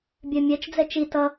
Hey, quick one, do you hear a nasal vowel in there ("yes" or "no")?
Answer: no